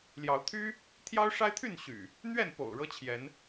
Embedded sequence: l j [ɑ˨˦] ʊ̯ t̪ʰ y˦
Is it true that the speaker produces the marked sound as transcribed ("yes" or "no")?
yes